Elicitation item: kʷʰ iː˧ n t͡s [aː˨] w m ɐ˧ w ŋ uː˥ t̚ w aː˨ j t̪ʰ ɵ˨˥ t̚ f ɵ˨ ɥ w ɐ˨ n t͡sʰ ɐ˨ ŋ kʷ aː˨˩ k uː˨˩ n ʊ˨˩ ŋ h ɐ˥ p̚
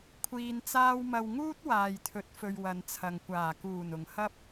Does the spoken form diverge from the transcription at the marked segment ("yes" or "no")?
yes